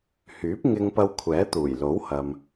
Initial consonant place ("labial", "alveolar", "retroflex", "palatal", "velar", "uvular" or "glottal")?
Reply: glottal